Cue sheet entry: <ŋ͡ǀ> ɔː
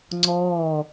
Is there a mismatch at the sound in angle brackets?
no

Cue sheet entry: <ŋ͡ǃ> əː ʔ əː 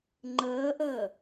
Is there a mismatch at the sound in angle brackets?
no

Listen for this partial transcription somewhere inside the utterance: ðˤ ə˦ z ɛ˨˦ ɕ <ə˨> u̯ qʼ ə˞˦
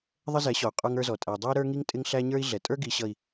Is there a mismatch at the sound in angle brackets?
yes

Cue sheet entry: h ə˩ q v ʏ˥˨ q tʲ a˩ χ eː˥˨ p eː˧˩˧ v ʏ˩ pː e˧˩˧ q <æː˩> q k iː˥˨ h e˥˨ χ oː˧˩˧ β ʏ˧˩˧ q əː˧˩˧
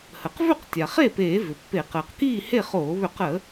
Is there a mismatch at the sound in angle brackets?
yes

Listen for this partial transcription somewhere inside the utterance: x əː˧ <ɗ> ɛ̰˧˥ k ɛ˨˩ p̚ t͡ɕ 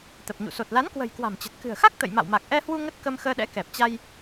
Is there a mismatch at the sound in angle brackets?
no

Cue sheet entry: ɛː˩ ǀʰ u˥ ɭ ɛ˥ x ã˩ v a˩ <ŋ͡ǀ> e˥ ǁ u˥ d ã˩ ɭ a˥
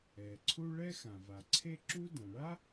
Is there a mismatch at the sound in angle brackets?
yes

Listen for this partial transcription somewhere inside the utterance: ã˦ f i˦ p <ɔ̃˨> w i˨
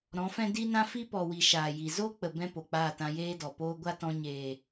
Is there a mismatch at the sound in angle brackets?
yes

